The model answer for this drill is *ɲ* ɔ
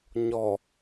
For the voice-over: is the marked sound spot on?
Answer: yes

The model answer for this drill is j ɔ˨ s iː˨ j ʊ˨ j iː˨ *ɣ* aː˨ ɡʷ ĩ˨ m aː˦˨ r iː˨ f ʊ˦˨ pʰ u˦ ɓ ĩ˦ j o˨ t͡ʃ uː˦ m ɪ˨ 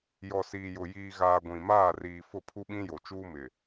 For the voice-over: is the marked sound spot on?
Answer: yes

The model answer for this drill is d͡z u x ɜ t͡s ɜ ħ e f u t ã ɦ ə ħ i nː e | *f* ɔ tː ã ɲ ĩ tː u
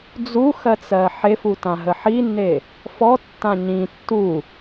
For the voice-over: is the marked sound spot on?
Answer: yes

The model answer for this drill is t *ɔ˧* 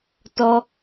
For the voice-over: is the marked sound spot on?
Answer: yes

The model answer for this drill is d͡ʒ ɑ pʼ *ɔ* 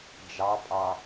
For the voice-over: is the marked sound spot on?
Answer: no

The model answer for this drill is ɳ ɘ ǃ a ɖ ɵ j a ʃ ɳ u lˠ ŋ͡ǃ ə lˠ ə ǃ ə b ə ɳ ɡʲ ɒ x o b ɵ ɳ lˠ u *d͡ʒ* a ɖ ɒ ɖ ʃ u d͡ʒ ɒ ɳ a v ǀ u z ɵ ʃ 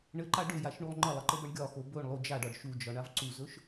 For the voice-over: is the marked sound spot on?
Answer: yes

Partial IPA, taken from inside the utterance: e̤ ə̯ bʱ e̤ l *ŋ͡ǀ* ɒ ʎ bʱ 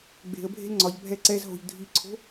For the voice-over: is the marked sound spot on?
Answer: yes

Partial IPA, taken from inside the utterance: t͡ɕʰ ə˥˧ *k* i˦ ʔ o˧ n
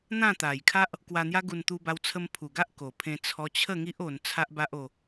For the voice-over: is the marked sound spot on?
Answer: no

